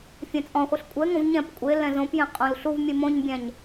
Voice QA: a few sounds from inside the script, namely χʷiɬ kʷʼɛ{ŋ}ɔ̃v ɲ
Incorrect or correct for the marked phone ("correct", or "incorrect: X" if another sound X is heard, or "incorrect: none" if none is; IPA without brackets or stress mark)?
correct